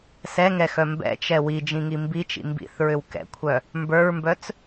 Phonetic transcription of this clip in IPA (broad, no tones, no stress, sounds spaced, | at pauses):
s ɛ ŋ ɛ x œ m b ɛ̰ t͡ʃ ɛ w i d͡ʒ ĩ ŋ i m b i t͡ʃ ḭ m b ḭ θ ɹ ʏ w k ɛ̰ kʷʰ œ | m b ə˞ ɹ m b œ t͡s